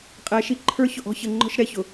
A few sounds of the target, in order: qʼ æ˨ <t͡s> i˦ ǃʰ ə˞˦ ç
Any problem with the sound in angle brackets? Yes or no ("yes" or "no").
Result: yes